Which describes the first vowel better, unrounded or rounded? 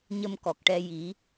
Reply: unrounded